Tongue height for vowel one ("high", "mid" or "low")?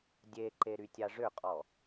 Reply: mid